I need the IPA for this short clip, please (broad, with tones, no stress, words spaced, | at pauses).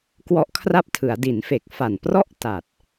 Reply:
kwɔ˦˥ʔkʰra˥˩p̚tʰɯ˩˦a̯ di˩˦nfe˨˩k̚fa˨˩nprɔ˥˩ʔ ta˨˩t̚